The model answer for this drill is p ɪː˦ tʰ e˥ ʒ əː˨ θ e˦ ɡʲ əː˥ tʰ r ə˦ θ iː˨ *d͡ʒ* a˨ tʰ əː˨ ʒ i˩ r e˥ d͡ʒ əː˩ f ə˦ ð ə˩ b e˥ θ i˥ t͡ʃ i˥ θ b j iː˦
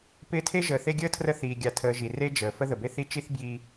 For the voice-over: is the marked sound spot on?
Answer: no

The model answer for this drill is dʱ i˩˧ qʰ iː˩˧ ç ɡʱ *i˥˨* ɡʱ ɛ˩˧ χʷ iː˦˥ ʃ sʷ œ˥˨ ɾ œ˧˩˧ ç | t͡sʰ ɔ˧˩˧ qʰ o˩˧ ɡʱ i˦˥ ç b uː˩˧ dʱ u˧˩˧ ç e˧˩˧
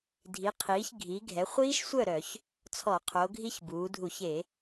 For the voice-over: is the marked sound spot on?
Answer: no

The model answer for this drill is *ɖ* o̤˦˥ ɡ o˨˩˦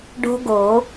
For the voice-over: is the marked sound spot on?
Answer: yes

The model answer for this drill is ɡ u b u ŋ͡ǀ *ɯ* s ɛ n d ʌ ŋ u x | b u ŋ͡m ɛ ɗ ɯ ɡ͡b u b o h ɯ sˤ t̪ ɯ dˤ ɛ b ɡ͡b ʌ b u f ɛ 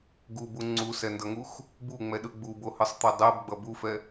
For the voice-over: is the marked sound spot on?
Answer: no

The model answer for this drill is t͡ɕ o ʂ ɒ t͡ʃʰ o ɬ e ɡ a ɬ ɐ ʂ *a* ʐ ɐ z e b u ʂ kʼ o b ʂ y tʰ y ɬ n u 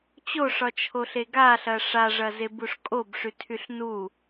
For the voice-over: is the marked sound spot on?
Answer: yes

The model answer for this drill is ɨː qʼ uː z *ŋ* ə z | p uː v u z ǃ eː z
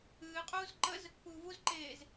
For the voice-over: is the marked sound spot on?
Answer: no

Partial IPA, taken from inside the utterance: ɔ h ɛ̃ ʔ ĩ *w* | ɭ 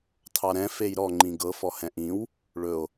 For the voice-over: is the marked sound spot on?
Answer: yes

